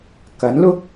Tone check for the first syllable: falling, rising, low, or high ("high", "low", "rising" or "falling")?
rising